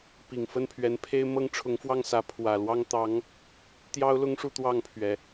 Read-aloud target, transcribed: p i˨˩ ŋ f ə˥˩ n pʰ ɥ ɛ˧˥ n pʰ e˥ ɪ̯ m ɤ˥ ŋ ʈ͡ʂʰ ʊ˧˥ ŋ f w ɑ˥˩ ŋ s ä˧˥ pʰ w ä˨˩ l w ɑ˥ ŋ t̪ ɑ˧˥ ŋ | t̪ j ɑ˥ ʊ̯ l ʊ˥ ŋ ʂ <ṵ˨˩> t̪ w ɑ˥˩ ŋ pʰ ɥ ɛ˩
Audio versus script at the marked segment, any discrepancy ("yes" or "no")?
yes